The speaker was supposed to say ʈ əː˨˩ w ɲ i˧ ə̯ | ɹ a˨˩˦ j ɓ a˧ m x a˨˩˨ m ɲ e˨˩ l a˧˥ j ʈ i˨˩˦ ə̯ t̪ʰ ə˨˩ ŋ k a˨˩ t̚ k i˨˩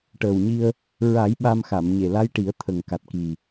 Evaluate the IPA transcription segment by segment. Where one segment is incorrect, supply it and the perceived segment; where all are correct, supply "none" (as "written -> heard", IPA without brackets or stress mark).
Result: none